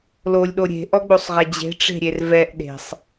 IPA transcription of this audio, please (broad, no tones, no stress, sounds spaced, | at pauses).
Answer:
l o lʲ ɗ o ɾʲ e̤ ʔ ɔ ɡ͡b o sˤ ʁ ɛ d͡ʑ e̤ ʈ͡ʂ e̤ ɾʲ e r v ɛ ʔ ɗ e̤ sˤ